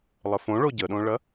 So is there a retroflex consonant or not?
yes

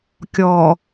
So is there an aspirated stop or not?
no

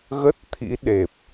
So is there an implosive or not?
yes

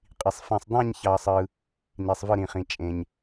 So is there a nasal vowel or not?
yes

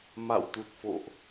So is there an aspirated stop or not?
no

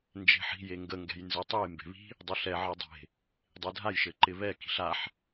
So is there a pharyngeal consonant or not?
yes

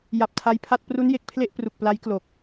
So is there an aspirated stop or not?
yes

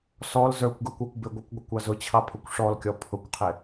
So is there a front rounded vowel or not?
no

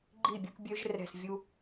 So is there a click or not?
yes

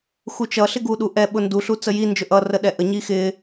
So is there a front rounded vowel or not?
no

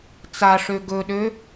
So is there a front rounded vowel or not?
yes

